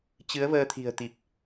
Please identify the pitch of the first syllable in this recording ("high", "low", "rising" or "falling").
rising